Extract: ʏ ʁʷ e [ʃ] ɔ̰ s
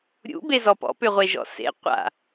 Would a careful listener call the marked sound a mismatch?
yes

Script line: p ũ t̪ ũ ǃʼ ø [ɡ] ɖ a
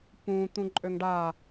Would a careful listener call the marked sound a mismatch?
yes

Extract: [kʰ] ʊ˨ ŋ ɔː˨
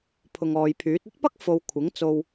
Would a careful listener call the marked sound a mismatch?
yes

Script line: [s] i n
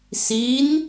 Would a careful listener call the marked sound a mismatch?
no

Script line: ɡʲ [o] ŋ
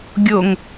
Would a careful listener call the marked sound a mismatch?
no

